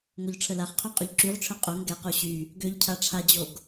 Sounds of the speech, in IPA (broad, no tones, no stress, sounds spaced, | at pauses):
ŋ o ʎ ʈ͡ʂʰ ə l a χ qʰ y qʼ ø ʎ ǁ y ʁ ʈ͡ʂʰ œ qʼ o ŋ ɡ ɛ q o ɕ y | ɡ ø ʎ cʰ a ʈ͡ʂʰ a d͡ʑ o ɡ